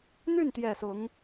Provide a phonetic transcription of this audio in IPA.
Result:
n̪ y˥˩ n t̪ j ɛ˨˩ s ʊ˧˥ ŋ

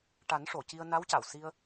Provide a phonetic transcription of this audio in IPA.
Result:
ʈ a˨˩˦ n ʂ o˨˩˨ c i˧ ə̯ n a˧˥ w c a˨˩˨ w s i˧ ə̯

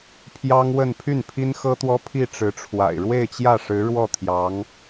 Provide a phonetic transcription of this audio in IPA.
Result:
pʰ j ɑ˥ ŋ w ə˥˧ n pʰ y˥˩ n pʰ i˥ n x ɤ˥ t̪ w ɔ˥ pʰ i˥˩ ʈ͡ʂ ɻ̩˧˥ ʈ͡ʂʰ w a̰˨˩ ɪ̯ ɻ w e˥˧ ɪ̯ t͡ɕ j ä˥˩ ʂ ɻ̩˧˥ ɻ w ɔ˥˩ t̪ʰ j ɑ˧˥ ŋ

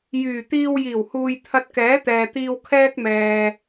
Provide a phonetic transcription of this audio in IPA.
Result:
j yː˨˩ t̪ iː˧ w j iː˨˩ w h uː˨ j t̪ʰ ɐ˧ t̚ k ɛː˨˥ t̪ ɛː˨ t̪ iː˧ w kʰ ɛː˥ k̚ m ɛː˨

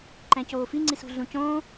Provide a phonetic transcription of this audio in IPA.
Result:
ǃ æ̃ c oː f i ŋ͡ǀ i s ṳ ɮ ũ c õː

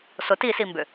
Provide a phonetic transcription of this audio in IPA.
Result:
s ʊ t i s i m b ʏ

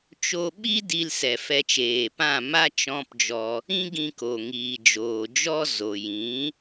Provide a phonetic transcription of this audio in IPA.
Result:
t͡ʃ o˧ ɓ i˦ d i˧ l s ɛ˨ f ɛ˧ t͡ʃ eː˨ p ã˦˨ m a˦ t͡ʃ ɔ̃˦ p d͡ʒ ɔ˧ | ĩ˦ ɡ ĩ˧ k o˨ ŋ iː˨ d͡ʒ oː˨ d͡ʒ ɔ˦ z o˨ j ĩ˨˦

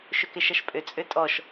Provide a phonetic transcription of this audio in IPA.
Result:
ʃ ʏ k ɪ ʃ ʌ ʃ pʼ ʏ t͡sʼ ʏ tʼ ɔ ʃ

